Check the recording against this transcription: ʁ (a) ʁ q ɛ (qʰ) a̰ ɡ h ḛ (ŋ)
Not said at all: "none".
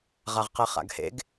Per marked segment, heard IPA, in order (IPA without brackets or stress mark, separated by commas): a, χ, ɡ